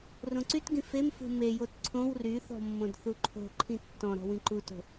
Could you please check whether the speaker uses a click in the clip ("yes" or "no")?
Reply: yes